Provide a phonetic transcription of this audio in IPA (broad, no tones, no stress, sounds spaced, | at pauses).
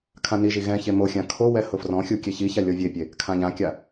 kʰ ã n i ʒ i ɣ ɛ̃ ç e m o xʲ ã kʰ o w ɛ h ʊ f r ɔ̃ xʲ u kʲ ɛ ç i ç a lʲ ɔ vʲ e pʲ e | kʰ ã ʎ ã kʲ a